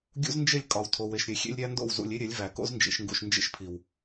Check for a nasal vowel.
absent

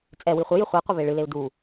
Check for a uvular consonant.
present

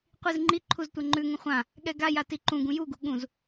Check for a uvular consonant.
present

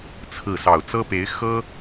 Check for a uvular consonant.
absent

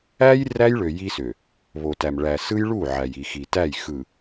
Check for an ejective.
absent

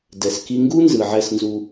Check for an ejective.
absent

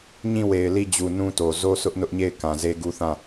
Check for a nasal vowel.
present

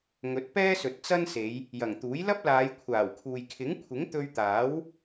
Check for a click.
absent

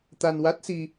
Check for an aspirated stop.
absent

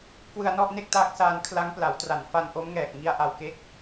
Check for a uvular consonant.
absent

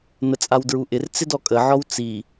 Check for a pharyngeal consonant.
present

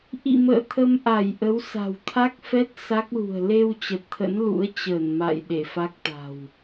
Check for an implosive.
present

